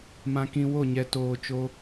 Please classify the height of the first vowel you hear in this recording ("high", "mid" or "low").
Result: low